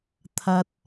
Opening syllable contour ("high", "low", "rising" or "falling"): high